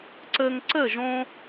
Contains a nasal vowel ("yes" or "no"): yes